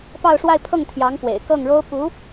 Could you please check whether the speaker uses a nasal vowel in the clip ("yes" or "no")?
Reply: no